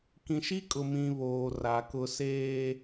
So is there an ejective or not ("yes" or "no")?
yes